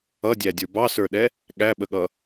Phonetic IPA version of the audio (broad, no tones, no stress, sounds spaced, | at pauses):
ʌ dʲ æ dʲ ə˞ b ɑ s ə˞ ɗ ɛ | ɠ æ ɓ ə ɠ ʌ